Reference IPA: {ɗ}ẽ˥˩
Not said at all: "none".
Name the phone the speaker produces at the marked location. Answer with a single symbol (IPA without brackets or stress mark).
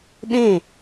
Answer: ɗ